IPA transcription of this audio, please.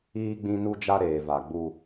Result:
iː˦ ɡ͡b ĩ˦ n u˦ d͡ʒ a˦ ɾ eː˨ v a˨ ɡ͡b u˦

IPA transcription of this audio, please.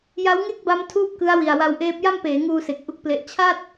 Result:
j a˦˥ w ŋ e˥˩ k̚ b a˦˥ m tʰ uː˥˩ p̚ k ɯ˦˥ a̯ w i˨˩ a̯ w a˧ w ʔ eː˦˥ p̚ j a˥˩ m p eː˩˦ ŋ uː˧ s e˨˩ k̚ ʔ u˥˩ k̚ p l e˦˥ ʔ t͡ɕʰ a˥˩ t̚

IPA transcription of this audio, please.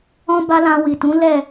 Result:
ɔ̃˦ b a˦ l ã˧ w i˨ t ũ˨˦ l ɛ˦˨

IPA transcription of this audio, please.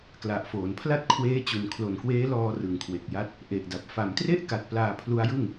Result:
k l a˨˩ ʔ f oː˩˦ n pʰ l a˥˩ t̚ kʰ w eː˦˥ t͡ɕ u˨˩ n kʰ l o˨˩ n k w eː˦˥ l ɔː˧ r ɯ˨˩ ŋ kʰ w e˨˩ k̚ j a˦˥ t̚ | ʔ e˨˩ ʔ d a˨˩ p̚ f a˩˦ m t r e˥˩ ʔ k a˨˩ t̚ p l aː˧ pʰ l u˦˥ a̯ j ɯ˥˩ ŋ

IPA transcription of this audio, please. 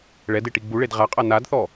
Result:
ɭ ɛ d e ʈ i ɡ͡b u ɭ e d ʁ a qʼ a n a d θ ɔ

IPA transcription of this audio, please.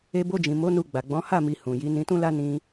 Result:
e˧ b o˧ d͡ʒ ĩ˨ m o˨˦ n u˧ ɡ͡b a˨ ɡ͡b ɔ̃˨˦ h a˦˨ m i˨ h ũ˨ j i˨˦ n ĩ˧ t ũ˦ l a˦ n ĩ˦

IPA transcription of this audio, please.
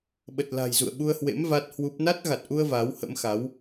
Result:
ɓ ə˨˩ t̚ l a̤˨˩ j z ṵ˧˨ ə̯ ɓ u˧ ə̯ h w ḛ˧˥ m v a˦˥ t̚ h w u˦˥ p̚ n a˦˥ t̚ ɣ a˨˩ t̚ ʔ u˧ ə̯ v a˨˦ w h ə̰˧˥ m x a˨˦ w

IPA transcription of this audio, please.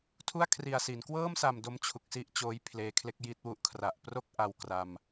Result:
tʰ u˥˩ a̯ kʰ r i˨˩ a̯ s i˩˦ n k w ɤː˥˩ m s a˨˩ m d o˦˥ m t͡ɕʰ u˨˩ k̚ s i˥˩ ʔ t͡ɕ oː˦˥ j pʰ l eː˧ kʰ l e˥˩ k̚ j i˥˩ t̚ w u˦˥ ʔ kʰ r a˨˩ ʔ p r o˥˩ k̚ ʔ a˧ w k r a˧ m

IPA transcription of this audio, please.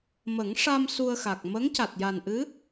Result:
m ə˨˩˦ ŋ ʂ a˧ m s u˧ ə̯ x a˨˩ k̚ m ə˧˥ ŋ c a˨˩ t̚ j a˨˩ n ʔ ɨ˧˥

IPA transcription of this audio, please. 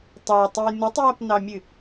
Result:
tˤ ɑ tˤ ɨ j n u tˤ j a p n ɑ mʲ ɨ

